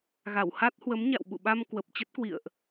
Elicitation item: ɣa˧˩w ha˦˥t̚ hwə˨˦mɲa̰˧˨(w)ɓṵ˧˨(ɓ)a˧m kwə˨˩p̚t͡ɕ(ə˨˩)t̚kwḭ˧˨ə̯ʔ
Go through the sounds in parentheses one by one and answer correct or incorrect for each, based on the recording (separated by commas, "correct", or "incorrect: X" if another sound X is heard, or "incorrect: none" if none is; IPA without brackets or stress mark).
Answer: correct, correct, incorrect: ə˦˥